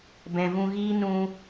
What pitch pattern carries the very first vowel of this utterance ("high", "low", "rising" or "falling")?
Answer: low